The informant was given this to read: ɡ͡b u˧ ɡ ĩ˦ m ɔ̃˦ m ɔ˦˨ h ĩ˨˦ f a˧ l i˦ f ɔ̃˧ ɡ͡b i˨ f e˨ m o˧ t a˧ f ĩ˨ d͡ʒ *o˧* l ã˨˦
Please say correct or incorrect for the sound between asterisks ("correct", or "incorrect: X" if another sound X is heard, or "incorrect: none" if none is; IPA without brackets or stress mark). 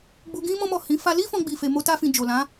incorrect: o˨